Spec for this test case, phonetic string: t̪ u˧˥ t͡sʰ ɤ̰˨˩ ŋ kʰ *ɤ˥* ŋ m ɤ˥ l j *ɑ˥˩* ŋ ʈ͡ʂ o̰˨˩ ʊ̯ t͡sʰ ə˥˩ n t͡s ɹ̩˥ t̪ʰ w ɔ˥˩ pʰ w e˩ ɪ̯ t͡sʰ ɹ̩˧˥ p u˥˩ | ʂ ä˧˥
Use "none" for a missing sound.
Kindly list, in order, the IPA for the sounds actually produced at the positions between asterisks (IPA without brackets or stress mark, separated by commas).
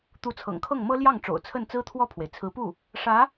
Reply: ɤ˥˩, ɑ˥˩